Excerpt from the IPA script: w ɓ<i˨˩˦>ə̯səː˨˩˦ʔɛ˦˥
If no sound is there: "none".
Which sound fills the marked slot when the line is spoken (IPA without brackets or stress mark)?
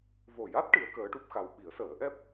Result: i˨˩˦